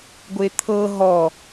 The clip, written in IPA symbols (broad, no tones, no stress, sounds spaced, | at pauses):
ɡʷ e t̪ʰ ɤ ɦ ɔ